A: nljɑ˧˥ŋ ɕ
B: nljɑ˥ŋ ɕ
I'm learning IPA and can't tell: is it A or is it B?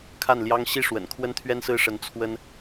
B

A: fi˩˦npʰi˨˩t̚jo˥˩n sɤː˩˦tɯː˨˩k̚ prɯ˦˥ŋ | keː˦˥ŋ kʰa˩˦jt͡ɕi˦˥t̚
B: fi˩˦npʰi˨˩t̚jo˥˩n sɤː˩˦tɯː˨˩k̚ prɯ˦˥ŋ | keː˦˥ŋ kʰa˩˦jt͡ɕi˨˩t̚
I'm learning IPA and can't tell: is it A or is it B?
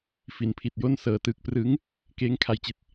B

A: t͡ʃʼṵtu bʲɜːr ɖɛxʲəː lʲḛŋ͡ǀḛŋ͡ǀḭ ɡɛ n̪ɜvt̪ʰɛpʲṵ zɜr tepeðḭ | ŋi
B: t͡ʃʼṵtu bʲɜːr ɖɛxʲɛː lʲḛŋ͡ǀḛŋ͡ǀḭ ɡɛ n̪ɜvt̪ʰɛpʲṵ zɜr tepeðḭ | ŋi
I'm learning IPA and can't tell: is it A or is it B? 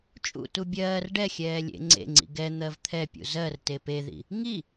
B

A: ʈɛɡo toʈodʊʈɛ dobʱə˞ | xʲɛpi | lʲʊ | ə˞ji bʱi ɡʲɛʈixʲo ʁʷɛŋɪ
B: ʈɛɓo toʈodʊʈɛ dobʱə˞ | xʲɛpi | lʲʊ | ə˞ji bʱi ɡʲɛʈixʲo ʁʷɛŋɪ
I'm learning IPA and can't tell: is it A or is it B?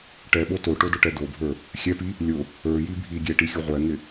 B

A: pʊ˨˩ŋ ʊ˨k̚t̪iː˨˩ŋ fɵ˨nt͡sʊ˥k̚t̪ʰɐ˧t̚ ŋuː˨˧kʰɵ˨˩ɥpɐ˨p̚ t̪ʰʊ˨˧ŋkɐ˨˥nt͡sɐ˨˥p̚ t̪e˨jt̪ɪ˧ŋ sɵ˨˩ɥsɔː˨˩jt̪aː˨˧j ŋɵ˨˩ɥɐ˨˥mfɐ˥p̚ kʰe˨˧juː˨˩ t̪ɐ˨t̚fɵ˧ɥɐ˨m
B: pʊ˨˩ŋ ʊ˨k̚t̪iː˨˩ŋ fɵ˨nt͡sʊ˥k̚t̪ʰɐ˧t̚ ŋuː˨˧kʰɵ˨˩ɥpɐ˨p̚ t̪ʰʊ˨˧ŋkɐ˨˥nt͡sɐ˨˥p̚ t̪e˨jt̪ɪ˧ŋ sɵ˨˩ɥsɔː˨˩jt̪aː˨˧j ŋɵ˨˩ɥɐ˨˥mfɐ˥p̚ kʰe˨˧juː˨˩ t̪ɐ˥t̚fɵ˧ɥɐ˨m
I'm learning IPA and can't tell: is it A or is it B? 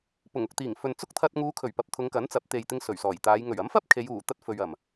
B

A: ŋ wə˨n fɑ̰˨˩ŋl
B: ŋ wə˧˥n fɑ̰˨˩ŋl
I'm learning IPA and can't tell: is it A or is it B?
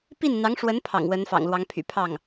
B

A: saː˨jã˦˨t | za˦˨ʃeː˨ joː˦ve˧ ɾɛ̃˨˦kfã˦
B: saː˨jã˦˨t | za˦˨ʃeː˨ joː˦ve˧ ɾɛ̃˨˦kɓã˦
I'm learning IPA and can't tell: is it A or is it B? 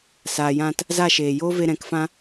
A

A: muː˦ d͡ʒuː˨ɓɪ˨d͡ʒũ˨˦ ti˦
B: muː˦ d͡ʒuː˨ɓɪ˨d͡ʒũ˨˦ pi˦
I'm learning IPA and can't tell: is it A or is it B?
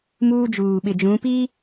B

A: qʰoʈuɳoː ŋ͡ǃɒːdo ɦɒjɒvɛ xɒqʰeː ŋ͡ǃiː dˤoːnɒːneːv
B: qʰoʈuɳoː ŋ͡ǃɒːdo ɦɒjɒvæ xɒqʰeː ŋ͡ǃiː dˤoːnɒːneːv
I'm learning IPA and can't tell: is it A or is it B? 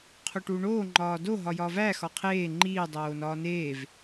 B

